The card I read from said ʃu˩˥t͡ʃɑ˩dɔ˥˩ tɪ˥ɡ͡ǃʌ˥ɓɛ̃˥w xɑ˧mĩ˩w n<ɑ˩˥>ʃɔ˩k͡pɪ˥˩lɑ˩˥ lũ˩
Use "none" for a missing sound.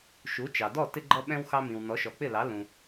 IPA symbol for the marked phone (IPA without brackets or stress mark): ɔ˩˥